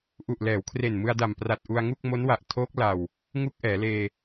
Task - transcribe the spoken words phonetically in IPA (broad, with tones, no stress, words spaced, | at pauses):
ʔu˨˩ʔlɛː˩˦wkʰre˨˩n mɯ˧a̯da˨˩mpra˨˩t̚ ʔu˧a̯ŋu˥˩k̚ mo˦˥nwa˨˩ʔ tʰoː˦˥k̚ la˨˩w | ŋu˥˩k̚ʔɛː˩˦leː˧